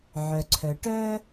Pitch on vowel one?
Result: low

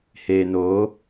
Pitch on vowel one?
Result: low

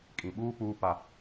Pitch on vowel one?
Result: low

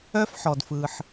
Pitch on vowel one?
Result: high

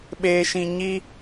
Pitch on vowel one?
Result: low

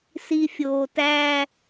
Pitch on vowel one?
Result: low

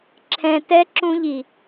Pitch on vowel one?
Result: low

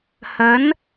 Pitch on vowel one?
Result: rising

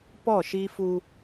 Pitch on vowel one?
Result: falling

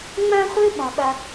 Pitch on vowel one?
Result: high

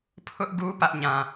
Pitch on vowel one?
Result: high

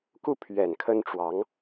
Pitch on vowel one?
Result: falling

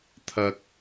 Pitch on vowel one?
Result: low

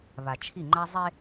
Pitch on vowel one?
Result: low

